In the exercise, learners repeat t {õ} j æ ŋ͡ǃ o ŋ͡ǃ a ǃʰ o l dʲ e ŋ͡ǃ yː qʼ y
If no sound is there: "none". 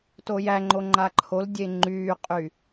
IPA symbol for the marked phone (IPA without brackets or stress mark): o